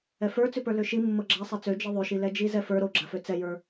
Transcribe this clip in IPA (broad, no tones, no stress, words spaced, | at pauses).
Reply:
ɛfə˞t͡sʉpə˞ løʃi mːɤɡ͡ǁa sˤɛt͡sø d͡ʒiðˤøʃi lɛd͡ʒizɛfə˞ ɾoɡ͡ǁafø t͡sɛjə˞